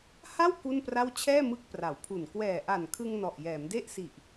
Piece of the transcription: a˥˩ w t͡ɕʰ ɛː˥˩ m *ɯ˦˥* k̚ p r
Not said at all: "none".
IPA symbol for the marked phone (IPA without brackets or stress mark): ɯ˦˥